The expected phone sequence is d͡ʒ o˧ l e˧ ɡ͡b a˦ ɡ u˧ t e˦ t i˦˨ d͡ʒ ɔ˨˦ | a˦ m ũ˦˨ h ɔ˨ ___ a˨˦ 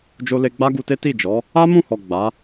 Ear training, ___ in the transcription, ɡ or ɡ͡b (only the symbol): ɡ͡b